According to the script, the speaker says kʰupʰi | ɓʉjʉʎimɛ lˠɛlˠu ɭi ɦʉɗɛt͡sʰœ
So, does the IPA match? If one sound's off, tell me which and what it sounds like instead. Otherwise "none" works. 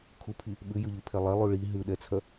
m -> pʰ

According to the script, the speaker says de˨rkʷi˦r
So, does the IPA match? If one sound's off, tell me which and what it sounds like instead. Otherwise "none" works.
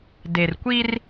none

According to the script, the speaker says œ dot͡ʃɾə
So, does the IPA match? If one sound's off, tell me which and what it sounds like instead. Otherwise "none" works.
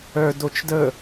ɾ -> d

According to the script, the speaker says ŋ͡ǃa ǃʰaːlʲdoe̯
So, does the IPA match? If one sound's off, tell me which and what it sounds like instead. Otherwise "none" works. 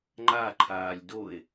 none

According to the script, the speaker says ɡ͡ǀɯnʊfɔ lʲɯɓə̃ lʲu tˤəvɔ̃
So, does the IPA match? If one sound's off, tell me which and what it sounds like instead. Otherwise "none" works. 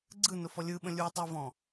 none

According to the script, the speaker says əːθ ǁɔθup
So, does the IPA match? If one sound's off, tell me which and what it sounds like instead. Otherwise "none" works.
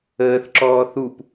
ɔ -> ɔː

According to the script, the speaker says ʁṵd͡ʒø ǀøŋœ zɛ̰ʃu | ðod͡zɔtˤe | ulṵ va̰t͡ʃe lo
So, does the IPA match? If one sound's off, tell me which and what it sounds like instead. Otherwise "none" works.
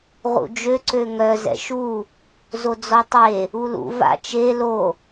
ð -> z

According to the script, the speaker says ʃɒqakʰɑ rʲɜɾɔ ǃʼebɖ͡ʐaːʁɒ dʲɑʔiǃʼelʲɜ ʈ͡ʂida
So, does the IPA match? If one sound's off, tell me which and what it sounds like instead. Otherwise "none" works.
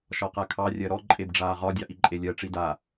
none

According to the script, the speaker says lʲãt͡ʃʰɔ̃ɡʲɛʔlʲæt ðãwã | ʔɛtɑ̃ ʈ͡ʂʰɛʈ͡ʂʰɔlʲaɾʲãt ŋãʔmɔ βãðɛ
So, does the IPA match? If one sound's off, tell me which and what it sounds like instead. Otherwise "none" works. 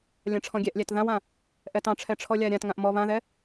t͡ʃʰ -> ʈ͡ʂʰ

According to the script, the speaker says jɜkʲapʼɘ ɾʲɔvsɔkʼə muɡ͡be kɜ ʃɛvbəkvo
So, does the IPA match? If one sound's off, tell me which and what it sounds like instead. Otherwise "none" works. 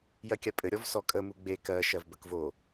ɛ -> ɜ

